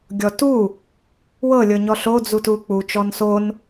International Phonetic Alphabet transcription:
ɡʲ ɔ t u | w ɤ lʲ ɤ ɲ ɔ ɬ o d͡z u t u k͡p u t͡ʃ ɔ n s o n

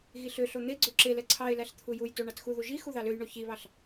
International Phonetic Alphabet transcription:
ɣ i ɬ ø ɬ o n̪ e ɡ͡ǀ ø ǁ e l ɛ ǀʰ ɑ ɪ̯ l æ ɬ t̪ʰ u j u j t o ɳ ɑ t x u ð u ʒ i x u ð ɑ l ø j ɳ o ç i β ɑ ɬ

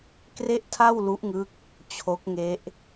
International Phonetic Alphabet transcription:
k r e˥˩ ʔ tʰ a˥˩ w l u˦˥ ʔ ŋ ɯ˦˥ k̚ | t͡ɕʰ o˦˥ k̚ ŋ e˦˥ ʔ

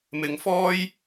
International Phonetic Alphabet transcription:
m ɪ˧ ŋ f ɔː˥ j

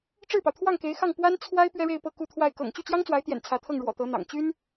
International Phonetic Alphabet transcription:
ʈ͡ʂ ɻ̩˥˩ p ɑ˩ ʊ̯ t̪ʰ w ɑ˥˩ ŋ k e˧˥ ɪ̯ x ɑ˥˩ ŋ p w a˥ n t͡sʰ w a˥ ɪ̯ p ɥ ɛ˥ ɻ e˥˧ ɪ̯ p ɤ˥˧ k u˥˧ t̪ʰ w a˥˩ ɪ̯ k ɤ̰˨˩ ŋ t͡ɕ y˥˩ t͡ɕ j ɑ˥ ŋ t͡s w a˧˥ ɪ̯ t̪ j ɛ̰˨˩ n t͡sʰ ä˧˥ t̪ʰ ɤ˥˩ ŋ ɻ w ɔ̰˨˩ t̪ ɤ˧˥ n̪ ɑ̰˨˩ ŋ t͡ɕ y˥ n

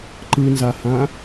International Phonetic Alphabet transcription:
ǃ ɯ n z a h ã

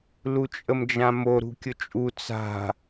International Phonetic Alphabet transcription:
l u t͡ʃʼ ə m d͡ʒ ã m o ɾ ṳ kʲ ʊ t͡ʃʼ u t͡s a̤

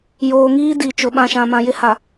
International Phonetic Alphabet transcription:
j oː˨ ŋ iː˦ d i˨ t͡ʃ ʊ˨ ɓ ã˨ ʃ ã˨ m ã˨ j ɪ˦ h a˨

